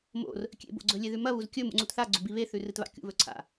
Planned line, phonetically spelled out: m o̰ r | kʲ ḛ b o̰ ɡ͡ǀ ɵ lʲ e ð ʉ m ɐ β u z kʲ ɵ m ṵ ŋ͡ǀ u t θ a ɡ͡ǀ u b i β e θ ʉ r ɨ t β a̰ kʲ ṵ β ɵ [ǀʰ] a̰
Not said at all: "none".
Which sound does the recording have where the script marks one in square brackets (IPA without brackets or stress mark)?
ǀʰ